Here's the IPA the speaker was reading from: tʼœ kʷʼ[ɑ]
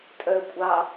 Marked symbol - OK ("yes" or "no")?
yes